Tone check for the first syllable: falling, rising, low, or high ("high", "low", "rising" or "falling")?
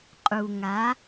low